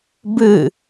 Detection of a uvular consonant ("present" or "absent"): absent